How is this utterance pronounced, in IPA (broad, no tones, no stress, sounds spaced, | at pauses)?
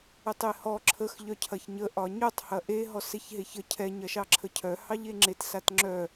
ɛ tˤ e h ɔ ǁʰ ə x ʎ œ cʰ ɐ ç ɲ ə ʔ ɒ ɲ œ tˤ h ɐ ʔ e ɦ ɔ s e ç ɦ e ç ə cʰ ɛ ɲ ɐ ʃ ɑ ǁʰ ə cʰ œ h ɑ ʎ e ŋ͡ǁ e t s a t ŋ͡ǁ œ